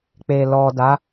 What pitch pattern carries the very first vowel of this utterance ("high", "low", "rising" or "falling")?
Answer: low